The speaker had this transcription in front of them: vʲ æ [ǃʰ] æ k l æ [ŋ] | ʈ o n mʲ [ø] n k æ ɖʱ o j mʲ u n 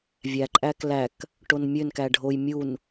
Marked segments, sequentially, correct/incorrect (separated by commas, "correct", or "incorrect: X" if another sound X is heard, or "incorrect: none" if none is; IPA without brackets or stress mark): incorrect: ǃʼ, incorrect: k, correct